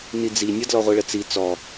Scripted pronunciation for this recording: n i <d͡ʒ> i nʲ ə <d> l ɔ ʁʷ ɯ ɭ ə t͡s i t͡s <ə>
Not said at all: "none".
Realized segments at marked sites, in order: d͡z, d, ɔ

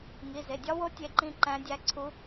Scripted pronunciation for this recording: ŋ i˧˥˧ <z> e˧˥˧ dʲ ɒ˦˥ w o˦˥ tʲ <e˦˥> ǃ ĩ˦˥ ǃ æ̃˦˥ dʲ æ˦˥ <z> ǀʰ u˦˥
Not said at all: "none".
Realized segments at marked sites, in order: z, e˦˥, none

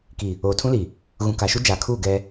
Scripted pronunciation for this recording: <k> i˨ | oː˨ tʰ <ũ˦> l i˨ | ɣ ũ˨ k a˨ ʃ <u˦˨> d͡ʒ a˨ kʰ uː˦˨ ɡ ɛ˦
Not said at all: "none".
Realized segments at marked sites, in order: k, ũ˦, u˦

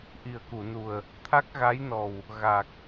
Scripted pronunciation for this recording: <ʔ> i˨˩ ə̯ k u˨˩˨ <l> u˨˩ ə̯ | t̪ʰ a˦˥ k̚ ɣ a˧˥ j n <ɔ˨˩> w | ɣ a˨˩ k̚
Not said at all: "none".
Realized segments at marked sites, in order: ʔ, n, ɔ˨˩

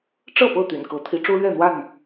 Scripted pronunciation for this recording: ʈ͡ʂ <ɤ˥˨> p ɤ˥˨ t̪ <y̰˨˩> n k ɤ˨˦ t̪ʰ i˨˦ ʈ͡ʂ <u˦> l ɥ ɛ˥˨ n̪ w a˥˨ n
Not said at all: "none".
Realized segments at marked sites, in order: ɤ˥˨, y̰˨˩, u˦

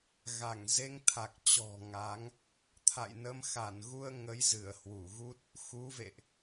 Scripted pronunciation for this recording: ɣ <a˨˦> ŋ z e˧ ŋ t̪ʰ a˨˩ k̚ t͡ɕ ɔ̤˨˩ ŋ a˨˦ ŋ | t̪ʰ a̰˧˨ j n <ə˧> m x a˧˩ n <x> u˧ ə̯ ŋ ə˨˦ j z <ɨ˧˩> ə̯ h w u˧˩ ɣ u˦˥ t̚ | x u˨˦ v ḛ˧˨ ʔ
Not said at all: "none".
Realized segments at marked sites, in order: a˧˩, ə˧, ɣ, ɨ˧˩

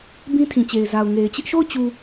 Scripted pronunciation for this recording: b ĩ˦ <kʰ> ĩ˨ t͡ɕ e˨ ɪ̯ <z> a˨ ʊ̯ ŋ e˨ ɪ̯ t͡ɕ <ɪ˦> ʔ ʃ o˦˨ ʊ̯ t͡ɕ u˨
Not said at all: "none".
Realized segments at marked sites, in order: tʰ, z, ɪ˦

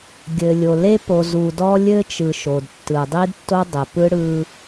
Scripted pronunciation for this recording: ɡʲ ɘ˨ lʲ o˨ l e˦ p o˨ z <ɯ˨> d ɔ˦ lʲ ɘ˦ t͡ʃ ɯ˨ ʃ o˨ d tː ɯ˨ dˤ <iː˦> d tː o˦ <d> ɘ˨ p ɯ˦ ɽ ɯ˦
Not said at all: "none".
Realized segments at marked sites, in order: u˨, i˦, dˤ

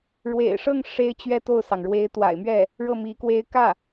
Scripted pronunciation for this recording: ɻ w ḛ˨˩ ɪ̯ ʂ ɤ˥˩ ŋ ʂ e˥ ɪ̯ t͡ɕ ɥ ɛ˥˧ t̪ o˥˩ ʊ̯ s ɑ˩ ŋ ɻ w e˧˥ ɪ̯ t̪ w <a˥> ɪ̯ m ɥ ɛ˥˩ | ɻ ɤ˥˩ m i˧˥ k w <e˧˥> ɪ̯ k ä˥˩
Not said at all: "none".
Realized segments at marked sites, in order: a̰˨˩, e˥

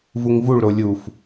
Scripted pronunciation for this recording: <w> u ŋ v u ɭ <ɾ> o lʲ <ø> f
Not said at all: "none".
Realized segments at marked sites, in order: v, ɾ, u

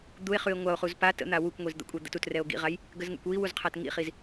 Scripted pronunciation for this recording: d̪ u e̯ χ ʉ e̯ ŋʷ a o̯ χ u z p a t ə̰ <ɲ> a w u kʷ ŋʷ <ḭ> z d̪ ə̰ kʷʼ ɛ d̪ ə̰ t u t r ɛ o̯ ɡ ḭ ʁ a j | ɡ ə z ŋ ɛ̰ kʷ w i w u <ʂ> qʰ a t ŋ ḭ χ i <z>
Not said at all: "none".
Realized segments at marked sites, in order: n̪, i, z, z

